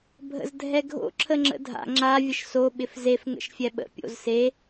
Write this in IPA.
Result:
bʱ ə̰ z dʱ ɛ ɡʱ o̰ ǁʰ ə ŋ͡ǁ ə̰ dʱ a̰ ŋ͡ǁ a vʲ ə ʃ s o ɓ ɪ f z e f ŋ ə̰ ʃ fʲ ɛ ɓ ə̰ pʲ o̰ z s e

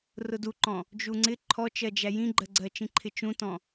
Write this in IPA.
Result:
r ʊ d u ǃ ɔ̃ | d͡ʒ u ŋ͡ǀ ɪ ǃʰ ɔ t͡ʃ ɜ d͡ʒ æ j ĩ ɡ͡ǃ ɜ ɡ͡ǀ ɜ t͡ʃ ĩ ǃʰ ɪ t͡ʃ ũ t ɔ̃

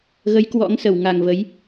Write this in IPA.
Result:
ɣ ə˨˦ j k w ɔ̰˧˥ ŋ s ə˧˩ w ŋ a˨˩ ŋ v ə˨˦ j

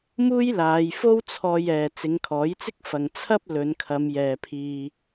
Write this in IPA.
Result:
m uː˥ j l aː˨˧ j f o˥ w t͡sʰ ɔː˧ j ɛː˨ t͡s ɪ˨˧ ŋ kʰ ɔː˨˥ j t͡s ɪ˥ k̚ f ɐ˨ ŋ t͡sʰ ɐ˥ p̚ l ɵ˨˧ n kʰ ɐ˨˧ m j ɛː˨ pʰ iː˧

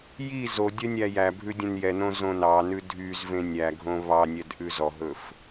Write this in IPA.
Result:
j i z o dʲ œ nʲ æ j æ bʱ ʉ dʲ ẽ n j ɛ n õ z õ n ɑ n ʉ dʱ y z v ẽ nʲ æ ɡʱ õ β ɑ nʲ ɛ d ʔ ʉ z ɔ ɦ ɵ f

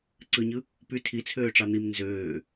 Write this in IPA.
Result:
ǀ ɯ ɲ ɯ | p y tʰ i t͡sʰ øː ʈ͡ʂ ɑ n̪ i m n z øː

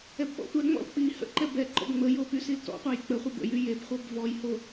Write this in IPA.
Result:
ɛ b ɓ ɔ̰ tʷ ɛ ŋ͡m ɔ̰ l k͡p i h ə̰ ǃ ɛ b ɛ ǃ ɔ̰ b ŋ͡m ə j o p y s i l t ɔ̰ qʷ a j k͡p ə χʷ ə b ə̰ j y j e b χʷ œ b v ɔ j h o

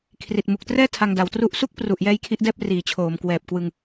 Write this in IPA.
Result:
kʰ r i˨˩ t̚ m u˨˩ k̚ t r ɛː˥˩ tʰ a˧ ŋ d a˨˩ w t r u˥˩ ʔ s u˥˩ k̚ p r u˨˩ ʔ j ɛː˦˥ j kʰ i˦˥ ʔ d ɛː˥˩ p̚ r iː˩˦ t͡ɕʰ oː˩˦ m k w ɛː˨˩ p̚ k w ɯ˧ ŋ

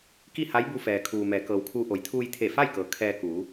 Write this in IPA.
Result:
k i˥˨ h a˧˥ j b u˧ f ɛː˩ kʰ uː˩ m ɛː˩˧ k ɤː˩ w kʰ uː˧ ʔ o˩˧ j t̪ʰ uː˧ j t̪ʰ e˧˩ f a˥˨ j k ɤː˩ kʰ ɛː˧ k uː˩˧

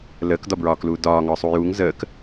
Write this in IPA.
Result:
l əː k d ɒ b ɹ ɒː k l uː d ɒː ŋ ɒː sˤ u j uː ŋ z əː k

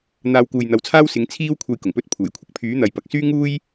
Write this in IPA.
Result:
n̪ aː˧ w k uː˨ j n̪ ɐ˨˥ w t͡sʰ aː˥ w s ɪ˨˥ ŋ t͡sʰ iː˥ w kʷʰ ɐ˧ j k ʊ˨˩ ŋ p ɵ˥ t̚ pʰ uː˨˩ j kʷʰ ɪ˨˥ k̚ pʰ yː˨˥ n̪ ɐ˨˧ j p ɐ˨ k̚ s yː˥ ŋ uː˥ j

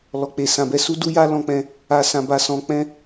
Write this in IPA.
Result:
l ɔ˨ k͡p e˨ s ã˨ b ɛ˧ s u˦ d u˦ j a˦ l ɔ̃˧ k͡p ɛ̃˧ | a˧ s ã˧ b a˧ s ɔ̃˧ k͡p ɛ̃˦

